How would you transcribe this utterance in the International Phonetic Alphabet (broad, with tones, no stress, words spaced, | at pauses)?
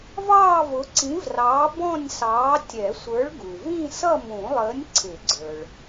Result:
vɑː˥˧vʊ˨˥ǀĩ˨˥vrɑː˨˥ bɔ̃˥˧nʲsɑː˨˥ tʲɛ˨˩˦sʷə˞˨˥ɭɡu˩vĩ˥˧ sʌ˥˧mũ˨˩˦lˠəː˨˥nʲ ǀʰɪ˨˩˦ɡ͡ǀə˞˩ɭ